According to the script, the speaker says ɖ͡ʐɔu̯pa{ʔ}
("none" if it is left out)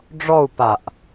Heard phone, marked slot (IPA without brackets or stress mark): ʔ